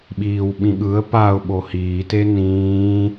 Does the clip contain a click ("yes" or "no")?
no